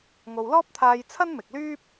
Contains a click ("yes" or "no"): no